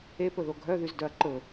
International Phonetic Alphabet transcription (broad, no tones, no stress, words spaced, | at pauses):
epɵðo ɡʱœðyzdœɐ̯ ǃɵ